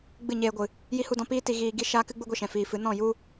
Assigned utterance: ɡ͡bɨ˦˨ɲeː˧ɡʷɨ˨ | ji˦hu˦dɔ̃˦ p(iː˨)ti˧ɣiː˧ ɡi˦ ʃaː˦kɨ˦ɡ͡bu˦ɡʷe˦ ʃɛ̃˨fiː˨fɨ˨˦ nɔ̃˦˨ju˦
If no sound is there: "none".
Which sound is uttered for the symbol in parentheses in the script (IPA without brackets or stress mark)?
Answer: iː˦